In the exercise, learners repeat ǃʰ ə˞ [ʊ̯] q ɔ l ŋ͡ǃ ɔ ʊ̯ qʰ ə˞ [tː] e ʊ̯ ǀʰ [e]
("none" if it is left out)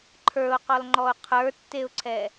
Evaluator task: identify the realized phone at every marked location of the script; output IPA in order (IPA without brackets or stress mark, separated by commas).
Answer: ʊ̯, tː, ɛ